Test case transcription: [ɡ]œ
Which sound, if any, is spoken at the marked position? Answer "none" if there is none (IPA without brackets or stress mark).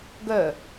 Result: ɡ